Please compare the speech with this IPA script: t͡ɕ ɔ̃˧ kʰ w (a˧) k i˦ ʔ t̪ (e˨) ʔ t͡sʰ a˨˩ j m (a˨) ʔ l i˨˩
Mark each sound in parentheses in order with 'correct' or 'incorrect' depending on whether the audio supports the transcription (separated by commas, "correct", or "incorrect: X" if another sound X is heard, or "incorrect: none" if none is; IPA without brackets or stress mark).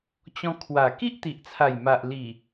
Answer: incorrect: a˨˩, incorrect: i˨, correct